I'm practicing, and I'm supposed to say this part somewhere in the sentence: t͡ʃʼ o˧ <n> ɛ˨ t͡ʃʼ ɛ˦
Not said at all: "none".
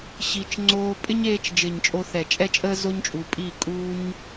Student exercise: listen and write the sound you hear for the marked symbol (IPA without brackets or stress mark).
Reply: θ